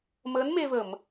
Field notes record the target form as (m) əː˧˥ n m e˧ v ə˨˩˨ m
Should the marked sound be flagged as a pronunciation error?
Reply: no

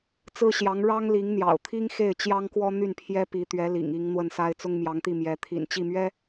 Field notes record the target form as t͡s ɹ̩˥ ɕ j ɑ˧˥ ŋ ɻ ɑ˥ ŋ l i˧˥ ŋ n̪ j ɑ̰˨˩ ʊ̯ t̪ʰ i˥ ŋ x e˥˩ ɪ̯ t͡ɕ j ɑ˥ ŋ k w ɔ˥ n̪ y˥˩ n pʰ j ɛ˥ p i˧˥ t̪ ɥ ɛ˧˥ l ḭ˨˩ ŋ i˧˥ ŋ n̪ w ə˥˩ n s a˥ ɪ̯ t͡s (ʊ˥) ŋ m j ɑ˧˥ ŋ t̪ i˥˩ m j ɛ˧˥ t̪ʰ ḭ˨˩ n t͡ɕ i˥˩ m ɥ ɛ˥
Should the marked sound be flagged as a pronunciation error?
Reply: no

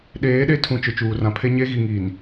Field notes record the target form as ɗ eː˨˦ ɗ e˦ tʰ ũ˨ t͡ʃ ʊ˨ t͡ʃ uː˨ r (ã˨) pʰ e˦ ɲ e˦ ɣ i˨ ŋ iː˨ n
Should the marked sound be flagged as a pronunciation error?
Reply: no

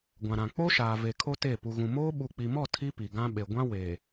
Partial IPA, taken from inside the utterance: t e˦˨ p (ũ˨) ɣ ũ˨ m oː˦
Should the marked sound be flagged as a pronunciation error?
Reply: yes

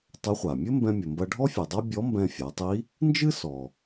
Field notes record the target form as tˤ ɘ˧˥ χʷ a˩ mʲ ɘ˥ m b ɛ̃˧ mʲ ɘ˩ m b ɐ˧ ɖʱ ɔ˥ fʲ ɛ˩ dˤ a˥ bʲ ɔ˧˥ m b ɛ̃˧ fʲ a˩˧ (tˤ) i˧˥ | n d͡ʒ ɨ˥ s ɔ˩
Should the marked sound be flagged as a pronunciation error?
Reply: no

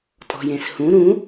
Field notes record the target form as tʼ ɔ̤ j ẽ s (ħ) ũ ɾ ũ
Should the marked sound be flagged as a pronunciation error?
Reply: yes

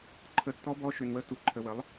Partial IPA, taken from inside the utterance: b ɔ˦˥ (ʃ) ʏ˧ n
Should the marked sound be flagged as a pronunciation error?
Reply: no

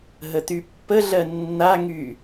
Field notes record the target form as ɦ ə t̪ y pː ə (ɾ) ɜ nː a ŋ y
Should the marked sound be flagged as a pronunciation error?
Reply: yes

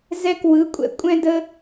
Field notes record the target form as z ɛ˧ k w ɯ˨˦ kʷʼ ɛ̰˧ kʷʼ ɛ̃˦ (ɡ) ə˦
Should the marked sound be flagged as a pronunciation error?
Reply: yes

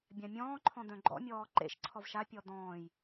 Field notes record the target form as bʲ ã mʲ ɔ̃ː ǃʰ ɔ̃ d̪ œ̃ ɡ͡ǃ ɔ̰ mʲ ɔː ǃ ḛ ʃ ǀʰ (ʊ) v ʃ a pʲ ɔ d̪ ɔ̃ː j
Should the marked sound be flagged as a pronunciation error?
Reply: yes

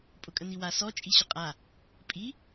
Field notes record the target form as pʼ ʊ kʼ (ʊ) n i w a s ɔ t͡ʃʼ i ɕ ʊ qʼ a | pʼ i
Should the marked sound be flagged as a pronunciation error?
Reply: yes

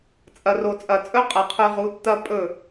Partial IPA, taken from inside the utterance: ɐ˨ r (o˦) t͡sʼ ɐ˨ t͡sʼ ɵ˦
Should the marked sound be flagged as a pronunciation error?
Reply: yes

